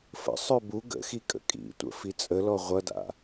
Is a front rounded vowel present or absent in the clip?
present